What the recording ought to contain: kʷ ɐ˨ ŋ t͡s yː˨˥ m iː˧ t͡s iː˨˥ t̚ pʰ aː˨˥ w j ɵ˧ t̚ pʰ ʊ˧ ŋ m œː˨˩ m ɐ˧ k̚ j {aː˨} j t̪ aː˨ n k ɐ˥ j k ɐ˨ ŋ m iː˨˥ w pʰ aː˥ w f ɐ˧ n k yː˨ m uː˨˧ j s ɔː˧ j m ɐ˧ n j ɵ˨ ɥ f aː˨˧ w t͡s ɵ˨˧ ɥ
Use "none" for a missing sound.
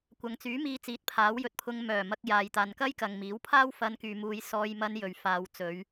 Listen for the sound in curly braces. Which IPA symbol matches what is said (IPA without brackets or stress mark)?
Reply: aː˨